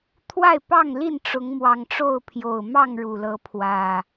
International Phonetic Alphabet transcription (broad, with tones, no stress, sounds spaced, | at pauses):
t̪ʰ w a˥˨ ɪ̯ p ɑ˥˨ ŋ l i˥˨ n ʈ͡ʂ ʊ˨˦ ŋ m w ɑ˨˩ ŋ ʈ͡ʂ o˥˨ ʊ̯ pʰ j o˨˩ ʊ̯ m ɑ˥˨ ŋ ɻ u˨˩ l ɤ˨˦ pʰ w ä˨˩